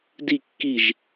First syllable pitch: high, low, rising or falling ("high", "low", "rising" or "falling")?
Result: falling